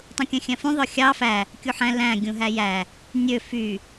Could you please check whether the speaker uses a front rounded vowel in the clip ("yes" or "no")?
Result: yes